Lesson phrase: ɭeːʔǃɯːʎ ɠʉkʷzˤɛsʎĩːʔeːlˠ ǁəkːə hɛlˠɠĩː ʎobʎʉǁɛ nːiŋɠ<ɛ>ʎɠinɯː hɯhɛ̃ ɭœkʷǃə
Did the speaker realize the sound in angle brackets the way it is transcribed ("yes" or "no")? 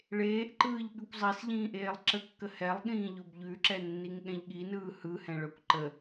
no